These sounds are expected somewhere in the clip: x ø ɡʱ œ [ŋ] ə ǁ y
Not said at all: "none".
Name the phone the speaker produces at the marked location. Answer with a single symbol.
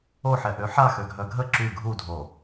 ɡʱ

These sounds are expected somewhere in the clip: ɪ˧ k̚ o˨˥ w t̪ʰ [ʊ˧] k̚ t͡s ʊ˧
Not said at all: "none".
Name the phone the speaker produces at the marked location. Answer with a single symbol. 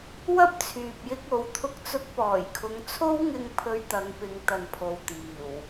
ʊ˧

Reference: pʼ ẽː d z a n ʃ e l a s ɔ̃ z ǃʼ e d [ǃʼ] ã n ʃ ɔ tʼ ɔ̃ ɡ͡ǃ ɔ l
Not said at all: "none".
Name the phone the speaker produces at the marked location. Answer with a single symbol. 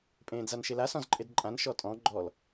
ǃʼ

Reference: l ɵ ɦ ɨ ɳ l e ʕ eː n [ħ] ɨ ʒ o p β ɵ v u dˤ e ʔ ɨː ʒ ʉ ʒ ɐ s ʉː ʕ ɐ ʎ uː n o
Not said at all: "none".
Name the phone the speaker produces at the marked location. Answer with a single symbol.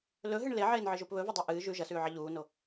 ʕ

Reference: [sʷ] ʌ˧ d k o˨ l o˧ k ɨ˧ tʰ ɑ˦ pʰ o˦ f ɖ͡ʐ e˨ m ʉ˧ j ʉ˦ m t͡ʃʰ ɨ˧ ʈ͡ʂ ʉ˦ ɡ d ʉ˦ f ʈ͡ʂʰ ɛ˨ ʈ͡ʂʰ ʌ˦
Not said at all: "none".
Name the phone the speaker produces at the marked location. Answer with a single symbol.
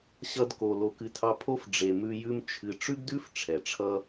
ɕ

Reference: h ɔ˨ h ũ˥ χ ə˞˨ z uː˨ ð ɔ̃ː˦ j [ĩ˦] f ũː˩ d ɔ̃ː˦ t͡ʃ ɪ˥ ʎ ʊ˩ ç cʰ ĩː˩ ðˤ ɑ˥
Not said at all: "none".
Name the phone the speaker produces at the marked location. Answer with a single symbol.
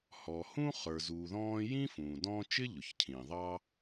ĩ˥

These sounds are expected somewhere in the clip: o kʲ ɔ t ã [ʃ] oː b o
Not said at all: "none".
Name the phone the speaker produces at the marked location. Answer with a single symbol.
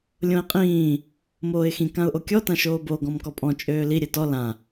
ʃ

